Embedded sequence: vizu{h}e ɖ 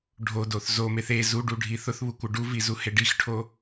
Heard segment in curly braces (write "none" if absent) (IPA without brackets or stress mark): h